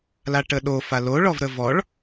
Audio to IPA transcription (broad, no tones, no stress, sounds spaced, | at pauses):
l a ʈ ə ɗ o f a l o ɭ ɔ v ɾ ə v ɔ ɭ